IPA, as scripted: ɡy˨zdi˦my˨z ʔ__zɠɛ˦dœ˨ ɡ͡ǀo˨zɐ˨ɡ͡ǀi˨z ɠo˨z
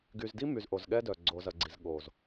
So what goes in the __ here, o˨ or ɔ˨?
o˨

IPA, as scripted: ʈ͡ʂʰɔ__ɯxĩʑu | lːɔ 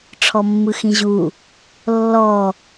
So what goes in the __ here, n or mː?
mː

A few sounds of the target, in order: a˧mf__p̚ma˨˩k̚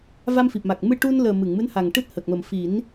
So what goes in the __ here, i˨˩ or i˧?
i˨˩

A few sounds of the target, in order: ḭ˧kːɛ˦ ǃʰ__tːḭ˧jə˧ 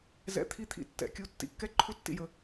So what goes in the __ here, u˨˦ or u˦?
u˦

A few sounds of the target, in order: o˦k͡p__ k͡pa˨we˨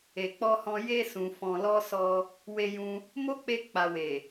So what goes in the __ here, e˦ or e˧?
e˧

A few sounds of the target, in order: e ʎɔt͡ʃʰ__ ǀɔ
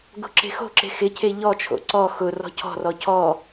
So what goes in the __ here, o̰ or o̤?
o̰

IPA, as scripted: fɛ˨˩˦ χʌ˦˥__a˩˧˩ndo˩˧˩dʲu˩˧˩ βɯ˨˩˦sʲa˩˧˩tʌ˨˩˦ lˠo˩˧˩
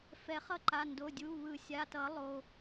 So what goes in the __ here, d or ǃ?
ǃ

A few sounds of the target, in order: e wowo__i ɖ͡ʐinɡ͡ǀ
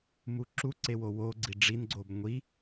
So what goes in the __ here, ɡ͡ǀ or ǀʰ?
ɡ͡ǀ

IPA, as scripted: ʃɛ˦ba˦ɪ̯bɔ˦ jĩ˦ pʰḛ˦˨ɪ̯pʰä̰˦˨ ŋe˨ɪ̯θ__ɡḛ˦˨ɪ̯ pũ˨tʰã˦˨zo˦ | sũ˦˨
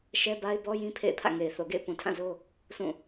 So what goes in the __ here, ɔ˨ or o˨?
o˨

